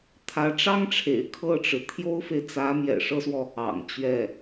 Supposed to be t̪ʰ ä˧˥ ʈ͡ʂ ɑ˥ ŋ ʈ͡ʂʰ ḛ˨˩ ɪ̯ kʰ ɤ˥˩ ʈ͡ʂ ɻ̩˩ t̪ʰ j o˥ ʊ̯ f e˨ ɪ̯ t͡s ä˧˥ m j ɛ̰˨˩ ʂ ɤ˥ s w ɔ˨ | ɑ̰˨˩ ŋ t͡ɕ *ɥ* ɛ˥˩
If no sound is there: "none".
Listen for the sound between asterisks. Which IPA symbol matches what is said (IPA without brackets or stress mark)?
ɥ